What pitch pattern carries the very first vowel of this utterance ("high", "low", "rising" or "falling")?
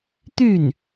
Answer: falling